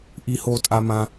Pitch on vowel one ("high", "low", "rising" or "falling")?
high